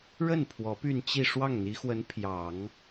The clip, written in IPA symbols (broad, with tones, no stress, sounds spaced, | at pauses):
ɻ ə˥˩ n pʰ w ɔ˧˥ p y˥˧ n t͡ɕ i˥˧ ʂ w ɑ˥˩ ŋ n̪ i˧˥ x w ə˧˥ n pʰ j ɑ˨˩˦ ŋ